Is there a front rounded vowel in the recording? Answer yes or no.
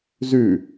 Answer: no